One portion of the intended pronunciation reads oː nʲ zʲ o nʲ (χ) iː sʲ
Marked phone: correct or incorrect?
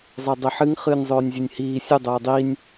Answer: incorrect